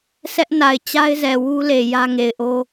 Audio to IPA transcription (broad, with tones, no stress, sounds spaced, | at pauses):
sʰ ɛ˦ ʔ n a˨ ɪ̯ t͡ɕ a˦ ɪ̯ z ɛ˨ w u˦ l e˨ j ä˦ ŋ e˨ ɪ̯ ʔ o˦